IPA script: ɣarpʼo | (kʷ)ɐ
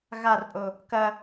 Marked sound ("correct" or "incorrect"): incorrect